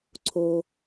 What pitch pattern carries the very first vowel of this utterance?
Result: low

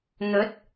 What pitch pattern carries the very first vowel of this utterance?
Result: rising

